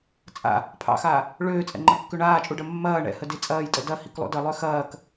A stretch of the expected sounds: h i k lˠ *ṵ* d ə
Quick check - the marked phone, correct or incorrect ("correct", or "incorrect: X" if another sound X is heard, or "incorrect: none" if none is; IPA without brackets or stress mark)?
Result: correct